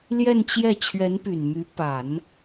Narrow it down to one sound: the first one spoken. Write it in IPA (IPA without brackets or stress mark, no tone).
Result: l